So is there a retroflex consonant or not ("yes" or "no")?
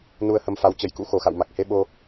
no